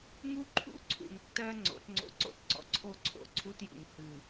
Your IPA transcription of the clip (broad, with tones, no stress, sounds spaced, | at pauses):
ŋ u˦ ǃʰ ṵ˦ ǀʰ ṵ˨ ŋ tː ɜ˦ ŋ͡ǀ o̰˨˦ t ŋ͡ǀ o̰˦ ǀ o̰˦ t ǀ ɔ̰˨ ǀʰ o˦ ǀʰ o̰˨ ǀʰ u˦ t j ṵ˨ ŋ h ɨ˦˨